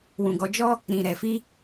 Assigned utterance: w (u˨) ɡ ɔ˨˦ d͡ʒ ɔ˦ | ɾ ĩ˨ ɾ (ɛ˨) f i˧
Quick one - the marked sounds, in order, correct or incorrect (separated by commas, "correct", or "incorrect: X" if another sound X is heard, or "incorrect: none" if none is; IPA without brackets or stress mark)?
incorrect: ũ˨, correct